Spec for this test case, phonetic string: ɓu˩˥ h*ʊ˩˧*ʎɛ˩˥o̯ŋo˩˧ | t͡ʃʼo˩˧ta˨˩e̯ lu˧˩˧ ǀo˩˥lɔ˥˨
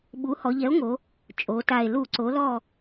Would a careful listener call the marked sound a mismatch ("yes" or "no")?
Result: yes